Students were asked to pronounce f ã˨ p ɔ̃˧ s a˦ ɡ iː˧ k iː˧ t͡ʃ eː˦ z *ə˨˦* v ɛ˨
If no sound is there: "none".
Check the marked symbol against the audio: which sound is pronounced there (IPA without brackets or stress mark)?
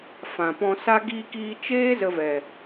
ə˧